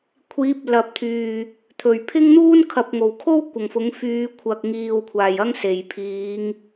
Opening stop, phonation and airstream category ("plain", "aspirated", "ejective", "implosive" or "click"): aspirated